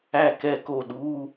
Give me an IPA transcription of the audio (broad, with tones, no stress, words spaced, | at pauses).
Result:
æ˥˩kɛ˥˩ko˥˩ɗu˧˥˧